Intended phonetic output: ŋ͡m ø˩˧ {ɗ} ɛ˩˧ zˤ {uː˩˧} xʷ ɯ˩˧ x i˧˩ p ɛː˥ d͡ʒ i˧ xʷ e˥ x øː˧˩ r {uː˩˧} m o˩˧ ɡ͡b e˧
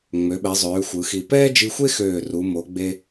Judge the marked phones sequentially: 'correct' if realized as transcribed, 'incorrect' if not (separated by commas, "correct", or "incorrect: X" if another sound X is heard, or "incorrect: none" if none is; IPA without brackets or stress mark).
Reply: incorrect: ɓ, incorrect: øː˩˧, incorrect: u˩˧